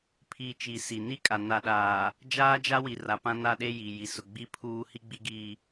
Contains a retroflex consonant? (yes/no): no